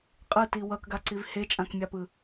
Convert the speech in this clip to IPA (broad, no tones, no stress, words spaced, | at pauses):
qʼɯti wʌkɡaǀiv het͡ʃʼãkmʲapɯ